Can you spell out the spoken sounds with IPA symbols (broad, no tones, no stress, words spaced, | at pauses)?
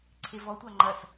ǀʰevɔtʷa ŋ͡ǃɐs